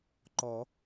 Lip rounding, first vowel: rounded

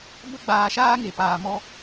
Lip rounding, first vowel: unrounded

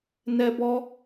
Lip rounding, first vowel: unrounded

